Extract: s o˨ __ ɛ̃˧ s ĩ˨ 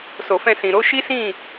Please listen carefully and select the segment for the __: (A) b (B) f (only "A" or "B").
B